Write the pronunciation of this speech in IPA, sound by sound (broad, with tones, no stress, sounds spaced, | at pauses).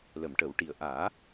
l ə˨˩˨ m ʈ ə˨˩˦ w ʈ i˨˩ ə̯ ʔ aː˨˩˦